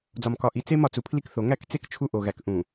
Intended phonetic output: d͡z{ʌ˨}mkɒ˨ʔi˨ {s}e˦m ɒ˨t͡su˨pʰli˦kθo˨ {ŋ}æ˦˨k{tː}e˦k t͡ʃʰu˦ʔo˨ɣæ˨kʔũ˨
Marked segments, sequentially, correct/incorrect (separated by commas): incorrect, incorrect, correct, incorrect